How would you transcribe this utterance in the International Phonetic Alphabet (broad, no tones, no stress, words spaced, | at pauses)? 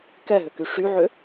kɛɦʏky ʂyʕʏ